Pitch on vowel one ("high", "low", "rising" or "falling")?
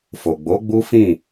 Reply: low